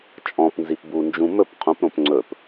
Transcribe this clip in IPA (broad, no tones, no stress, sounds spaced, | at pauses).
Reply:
t͡ʃʼ ɔ̃ p n z i p b u n d͡ʒ ũ m ɵ p qʰ ũ p ɾ õ p ŋ͡ǀ ɵ p